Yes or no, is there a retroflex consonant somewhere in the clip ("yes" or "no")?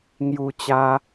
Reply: no